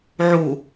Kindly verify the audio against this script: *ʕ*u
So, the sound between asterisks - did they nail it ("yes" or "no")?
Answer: yes